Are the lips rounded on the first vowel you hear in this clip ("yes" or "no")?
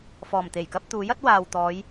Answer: yes